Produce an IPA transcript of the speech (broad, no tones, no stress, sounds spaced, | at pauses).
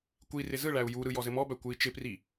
kʷ i r ɪ z ɯ ɭ æ u̯ j u ɾ ɯ j ɔ z ɘ m ɔ b æ kʷ ɯ i̯ t͡ʃ ɪ p r i